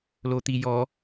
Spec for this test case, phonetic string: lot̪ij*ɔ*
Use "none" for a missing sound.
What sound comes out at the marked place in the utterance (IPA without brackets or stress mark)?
ɔ